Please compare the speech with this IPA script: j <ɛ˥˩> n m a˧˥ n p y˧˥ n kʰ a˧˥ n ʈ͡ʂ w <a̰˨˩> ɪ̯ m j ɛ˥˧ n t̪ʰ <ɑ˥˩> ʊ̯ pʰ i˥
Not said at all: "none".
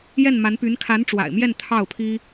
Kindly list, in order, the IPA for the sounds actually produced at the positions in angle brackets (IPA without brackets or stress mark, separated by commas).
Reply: ɛ˥˩, a̰˨˩, ɑ˥˩